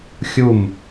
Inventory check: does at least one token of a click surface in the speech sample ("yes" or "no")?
no